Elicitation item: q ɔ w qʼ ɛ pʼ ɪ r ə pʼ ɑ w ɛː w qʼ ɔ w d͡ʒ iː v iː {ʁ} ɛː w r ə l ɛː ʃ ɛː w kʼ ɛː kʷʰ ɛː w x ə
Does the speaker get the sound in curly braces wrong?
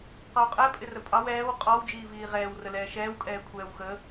no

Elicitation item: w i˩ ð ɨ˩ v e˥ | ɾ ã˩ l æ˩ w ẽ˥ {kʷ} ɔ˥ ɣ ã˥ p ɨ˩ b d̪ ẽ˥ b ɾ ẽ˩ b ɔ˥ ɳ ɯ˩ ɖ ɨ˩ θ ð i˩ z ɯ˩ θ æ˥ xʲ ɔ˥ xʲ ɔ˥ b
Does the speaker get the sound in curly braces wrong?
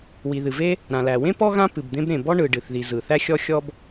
yes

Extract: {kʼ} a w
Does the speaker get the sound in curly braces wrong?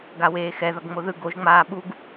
yes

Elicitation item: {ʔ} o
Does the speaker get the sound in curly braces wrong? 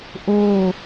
no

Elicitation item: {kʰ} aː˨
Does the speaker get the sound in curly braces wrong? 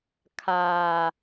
no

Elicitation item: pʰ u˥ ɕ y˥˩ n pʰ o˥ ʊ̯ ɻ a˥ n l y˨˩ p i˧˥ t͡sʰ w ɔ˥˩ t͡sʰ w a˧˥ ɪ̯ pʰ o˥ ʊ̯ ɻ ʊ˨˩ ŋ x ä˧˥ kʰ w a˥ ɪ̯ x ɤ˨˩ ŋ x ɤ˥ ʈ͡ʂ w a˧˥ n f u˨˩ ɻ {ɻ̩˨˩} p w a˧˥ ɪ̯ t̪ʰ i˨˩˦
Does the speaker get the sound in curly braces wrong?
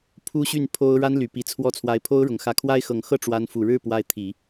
yes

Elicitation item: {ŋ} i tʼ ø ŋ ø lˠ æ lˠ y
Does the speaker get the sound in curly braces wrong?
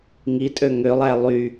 no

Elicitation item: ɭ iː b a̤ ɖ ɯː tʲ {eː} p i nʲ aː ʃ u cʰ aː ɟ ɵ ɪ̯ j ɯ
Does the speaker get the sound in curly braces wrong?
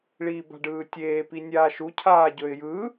no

